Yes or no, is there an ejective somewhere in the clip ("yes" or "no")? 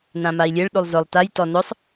no